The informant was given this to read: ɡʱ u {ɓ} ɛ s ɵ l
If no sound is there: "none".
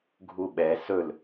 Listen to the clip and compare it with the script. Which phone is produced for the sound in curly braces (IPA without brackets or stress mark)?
ɓ